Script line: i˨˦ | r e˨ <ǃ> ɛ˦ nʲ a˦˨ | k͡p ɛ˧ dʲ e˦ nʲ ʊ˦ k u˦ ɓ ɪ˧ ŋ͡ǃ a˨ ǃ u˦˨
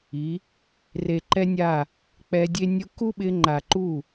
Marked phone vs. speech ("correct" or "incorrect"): correct